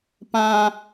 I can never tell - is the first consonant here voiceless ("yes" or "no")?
yes